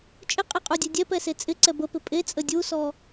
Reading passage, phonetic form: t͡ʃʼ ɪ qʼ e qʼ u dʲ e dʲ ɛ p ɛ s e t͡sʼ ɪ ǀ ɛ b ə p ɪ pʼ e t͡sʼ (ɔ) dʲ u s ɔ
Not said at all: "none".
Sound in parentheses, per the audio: ə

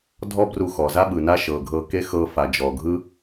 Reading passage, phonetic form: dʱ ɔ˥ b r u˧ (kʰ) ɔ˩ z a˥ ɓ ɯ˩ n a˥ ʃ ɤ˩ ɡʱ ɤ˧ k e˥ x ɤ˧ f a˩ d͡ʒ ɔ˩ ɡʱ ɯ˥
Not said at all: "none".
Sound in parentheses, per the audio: x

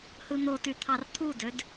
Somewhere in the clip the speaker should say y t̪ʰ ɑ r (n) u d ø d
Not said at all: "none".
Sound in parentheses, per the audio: t̪ʰ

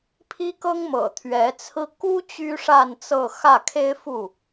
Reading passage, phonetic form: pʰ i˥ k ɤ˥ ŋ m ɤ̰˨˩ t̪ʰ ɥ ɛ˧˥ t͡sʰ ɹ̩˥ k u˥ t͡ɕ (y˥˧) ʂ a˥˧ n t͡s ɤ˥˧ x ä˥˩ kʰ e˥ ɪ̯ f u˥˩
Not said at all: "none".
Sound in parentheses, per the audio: y˥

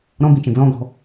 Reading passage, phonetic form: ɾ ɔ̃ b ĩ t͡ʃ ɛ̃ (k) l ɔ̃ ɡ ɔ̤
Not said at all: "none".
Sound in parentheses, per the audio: ɡ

